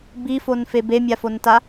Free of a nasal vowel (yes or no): yes